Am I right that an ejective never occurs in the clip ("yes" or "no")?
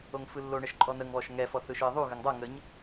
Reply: no